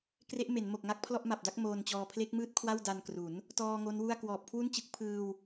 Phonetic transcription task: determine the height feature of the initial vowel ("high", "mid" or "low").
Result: mid